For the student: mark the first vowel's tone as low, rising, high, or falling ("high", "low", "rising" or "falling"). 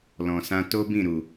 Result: low